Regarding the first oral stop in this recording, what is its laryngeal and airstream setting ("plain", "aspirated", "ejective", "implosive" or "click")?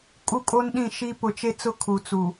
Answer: ejective